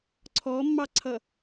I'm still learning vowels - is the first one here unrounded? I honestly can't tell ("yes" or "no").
no